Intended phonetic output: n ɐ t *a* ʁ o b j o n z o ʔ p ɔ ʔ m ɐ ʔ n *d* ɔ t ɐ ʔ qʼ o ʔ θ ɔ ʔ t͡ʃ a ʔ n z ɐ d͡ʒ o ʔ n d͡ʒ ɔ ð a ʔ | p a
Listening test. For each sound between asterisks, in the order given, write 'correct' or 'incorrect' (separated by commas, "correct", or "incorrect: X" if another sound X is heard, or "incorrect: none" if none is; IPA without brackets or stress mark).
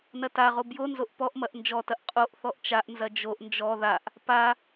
correct, incorrect: d͡ʒ